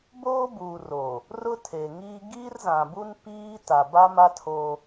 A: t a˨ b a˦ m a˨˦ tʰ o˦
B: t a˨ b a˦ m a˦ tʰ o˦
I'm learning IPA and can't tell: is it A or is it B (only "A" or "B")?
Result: B